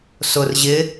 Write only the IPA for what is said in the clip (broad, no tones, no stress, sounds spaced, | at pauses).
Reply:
s ʊ r ʑ ɪ